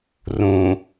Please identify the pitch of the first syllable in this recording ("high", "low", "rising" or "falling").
low